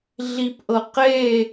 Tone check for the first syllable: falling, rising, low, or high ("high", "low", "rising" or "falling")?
low